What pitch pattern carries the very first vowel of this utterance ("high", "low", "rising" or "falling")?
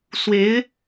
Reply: rising